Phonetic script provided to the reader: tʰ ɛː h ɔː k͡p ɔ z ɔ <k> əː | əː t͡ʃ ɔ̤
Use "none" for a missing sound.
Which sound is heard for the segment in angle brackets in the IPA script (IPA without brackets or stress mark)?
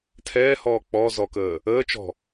k